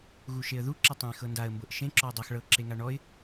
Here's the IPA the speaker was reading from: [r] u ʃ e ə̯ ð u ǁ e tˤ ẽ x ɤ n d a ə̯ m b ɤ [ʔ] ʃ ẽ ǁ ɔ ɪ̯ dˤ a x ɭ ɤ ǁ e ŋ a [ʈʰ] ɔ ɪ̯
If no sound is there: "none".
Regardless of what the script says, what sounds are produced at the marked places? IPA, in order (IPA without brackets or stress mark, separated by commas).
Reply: ɣ, ʔ, ɳ